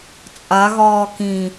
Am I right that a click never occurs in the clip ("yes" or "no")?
yes